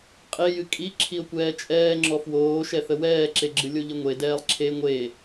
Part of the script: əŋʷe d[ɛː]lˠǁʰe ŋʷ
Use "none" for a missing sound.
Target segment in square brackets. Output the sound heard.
ɛː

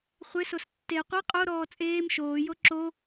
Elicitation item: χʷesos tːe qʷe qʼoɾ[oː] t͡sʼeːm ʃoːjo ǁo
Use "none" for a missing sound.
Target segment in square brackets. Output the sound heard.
ɔː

